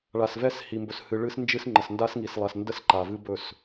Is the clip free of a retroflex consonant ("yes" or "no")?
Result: no